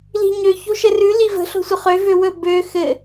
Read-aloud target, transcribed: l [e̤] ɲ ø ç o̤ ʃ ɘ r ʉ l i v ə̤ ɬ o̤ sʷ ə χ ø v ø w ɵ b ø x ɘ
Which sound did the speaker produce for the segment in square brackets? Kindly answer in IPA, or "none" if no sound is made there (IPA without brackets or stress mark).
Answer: i̤